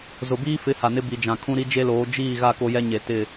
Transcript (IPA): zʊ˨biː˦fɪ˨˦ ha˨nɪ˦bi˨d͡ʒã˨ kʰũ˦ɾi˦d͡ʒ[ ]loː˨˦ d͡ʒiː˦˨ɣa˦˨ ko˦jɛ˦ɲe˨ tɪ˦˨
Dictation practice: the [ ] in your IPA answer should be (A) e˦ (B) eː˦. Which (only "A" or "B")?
A